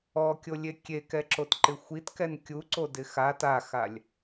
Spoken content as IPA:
ɔ kʲ o lʲ e kʲ e k ɛ ǁ o t ǃ ɪ xʷ i t k ɛ n kʲ u ǀ o d ɪ x a t a x a lʲ

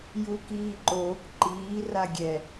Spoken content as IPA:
j u k iː ǃ oː k ǃ iː r a ɡʲ ɛ

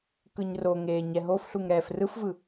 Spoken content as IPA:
k ɯ ɲ r o ŋ eː ɲ ɛ ɦ o f ɬ u ŋ ɾ ɛː f r ɯ f v ɯ

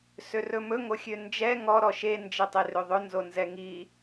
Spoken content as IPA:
s ø r ɵ m ɵ ŋ o xʲ ø n d͡ʒ ɛ ŋ ɔ ɾ ɔ ʃ e n d͡ʒ e tˤ e r ø ðˤ ɵ n z o n z ɛ ŋ i

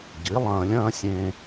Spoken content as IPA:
ɟ i˩˥ lˠ ɐ̃ː˧ lʲ ɐ̃ː˥ sʲ ẽː˧

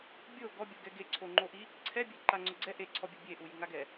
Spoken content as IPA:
bʲ o ɡ ɔ bʲ o ɡ ɛ ɡ e ǀʰ o ŋ͡ǃ o ʔ i | ǀʰ ɛ bʲ e ǃ a ŋ͡ǀ ʊ ɡ͡ǀ ɛ ʔ e ǀʰ ɔ bʲ u bʲ e ʔ u j i ŋ a ɡ ɛ

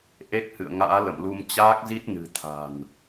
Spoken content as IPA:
ʔ e˦˥ k̚ h ɨ̰˧˨ ə̯ ŋ a̰ː˧˥ l ə̰˧˨ m l u˧ m t͡ɕ aː˦˥ k̚ z i˦˥ t̚ n ɨ̤˨˩ t̪ʰ a̤˨˩ n

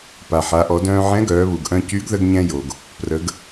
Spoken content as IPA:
p a˩ ħ a˩˧ ʔ ɔ˩˧ d œ̃ː˧ ʕ ɛ̃˧˥ ɡ œː˩˧ β u˩ ɡ ʔ œ̃˧ c y˧˥ ɡ ð ə˧ ɡ ɲ ɛ̃˧ j o˩ ɡ | p r ə˩˧ ɡ

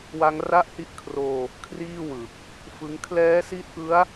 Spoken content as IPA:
w a˦˥ ŋ r a˥˩ ʔ h i˥˩ ʔ kʰ r oː˧ | kʰ r iː˥˩ w ɯ˨˩ k̚ | f ɯ˦˥ ŋ kʰ l ɛː˦˥ s i˦˥ t̚ ʔ ɯ˦˥ a̯

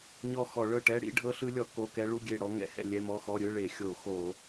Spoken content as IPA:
ɲ ɔ˦˨ x ɔ˧˩˧ ɭ ɤ˦˨ ʈ ɛ˧˥˧ ɽ ḭ˦˥ ɖʱ ɤ˦˥ ɬ ɯ˦˥ lʲ ɔ˧˩˧ k o˧˥˧ k ɛ˦˥ ɭ u˧˥˧ ɡʲ e˦˨ ɽ ɔ˦˥ ŋ ɛ̰˧˩˧ h ɛ̰˦˨ lʲ ɛ˧˥˧ m ɔ˧˥˧ x ɔ˧˥˧ ɾʲ ɯ˧˥˧ ɭ e˧˩˧ xʲ o˧˩˧ x o˧˩˧

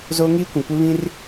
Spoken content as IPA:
z oː˦ ŋ iː˦ kʷ ĩ˨ kʷ ɪ˦ β ĩ˦ r

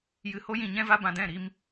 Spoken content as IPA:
j ɨ˨ h o˧ j ĩ˨ ɲ ɛ̃˦ v a˦ b ã˧ d ɛ̃˦˨ ɾ i˧ m

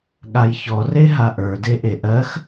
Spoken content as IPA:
ɠ a j ç ɔ r e ɦ a ʔ ə˞ d e ʔ e ʔ ɜ x

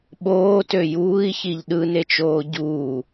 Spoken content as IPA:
ɓ oː t ø j uː i̯ ç i ʎ ɗ ɯ n e t͡ʃ oː ɟ uː

